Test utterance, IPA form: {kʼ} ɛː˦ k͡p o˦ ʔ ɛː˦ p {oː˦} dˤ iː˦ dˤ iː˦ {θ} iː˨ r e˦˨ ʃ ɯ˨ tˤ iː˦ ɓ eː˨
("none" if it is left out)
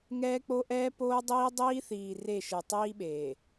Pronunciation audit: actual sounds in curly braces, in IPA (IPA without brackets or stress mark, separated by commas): ŋ, oː˦, θ